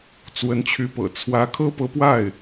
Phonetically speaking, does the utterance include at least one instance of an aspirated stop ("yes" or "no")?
yes